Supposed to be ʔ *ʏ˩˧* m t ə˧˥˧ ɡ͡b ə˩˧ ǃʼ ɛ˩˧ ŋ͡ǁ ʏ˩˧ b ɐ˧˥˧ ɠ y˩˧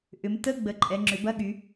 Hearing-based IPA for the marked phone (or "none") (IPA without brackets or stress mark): ʏ˩˧